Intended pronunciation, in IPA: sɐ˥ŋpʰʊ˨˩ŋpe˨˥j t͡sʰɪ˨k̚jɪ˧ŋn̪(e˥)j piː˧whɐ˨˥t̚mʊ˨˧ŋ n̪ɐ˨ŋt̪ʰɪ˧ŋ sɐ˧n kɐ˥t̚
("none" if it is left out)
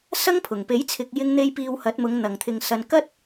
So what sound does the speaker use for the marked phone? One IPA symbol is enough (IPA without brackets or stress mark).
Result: e˧